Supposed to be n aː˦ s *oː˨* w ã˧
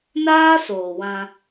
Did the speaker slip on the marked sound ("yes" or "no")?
no